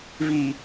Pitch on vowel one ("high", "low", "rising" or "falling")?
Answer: low